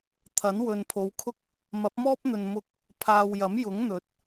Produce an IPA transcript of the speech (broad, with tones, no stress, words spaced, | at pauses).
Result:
t̪ʰɐ˨˥nwɵ˨npʰo˨˧wkʰʊ˥k̚ | mɐ˨˥p̚mɔː˥p̚n̪ɵ˨n mʊ˧k̚ | pʰaː˨wjɐ˨˥mjʊ˨˥ŋ n̪ɵ˨˥t̚